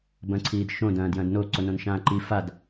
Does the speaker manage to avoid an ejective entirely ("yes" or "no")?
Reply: yes